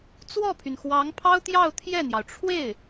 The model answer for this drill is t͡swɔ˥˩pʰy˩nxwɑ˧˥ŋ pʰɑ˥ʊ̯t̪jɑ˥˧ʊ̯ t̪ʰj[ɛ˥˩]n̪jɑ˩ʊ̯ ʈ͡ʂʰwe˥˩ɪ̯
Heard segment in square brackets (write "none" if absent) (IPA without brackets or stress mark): ɛ˥˩